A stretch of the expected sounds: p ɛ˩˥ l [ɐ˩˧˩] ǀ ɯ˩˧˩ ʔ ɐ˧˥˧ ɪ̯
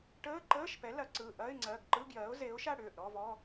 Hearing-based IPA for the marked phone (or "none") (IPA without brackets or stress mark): ɐ˩˥